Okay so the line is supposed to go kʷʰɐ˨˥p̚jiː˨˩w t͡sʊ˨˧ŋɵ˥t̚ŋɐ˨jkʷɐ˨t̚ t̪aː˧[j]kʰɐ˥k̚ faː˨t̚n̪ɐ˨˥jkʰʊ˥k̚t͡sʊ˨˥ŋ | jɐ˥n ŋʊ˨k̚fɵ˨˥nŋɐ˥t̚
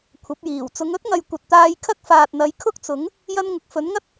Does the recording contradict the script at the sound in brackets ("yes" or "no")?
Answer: no